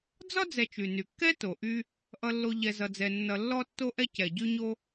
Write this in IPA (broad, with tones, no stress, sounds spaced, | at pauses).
d͡z ɒ˥ d͡z ɛ˨ t͡ʃ y˩ n y˩ kː ɛ˥ t o˩ ʔ y˦ | ʔ ʌ˨ lː o˨ ʎ ɛ˨ z ʌ˨ d͡z ɛ˨ nː ʌ˨ lː ɔ˦ tː o˦ ʔ ɛ˦ c ɛ˩ ɟ y˦ ɲ o˦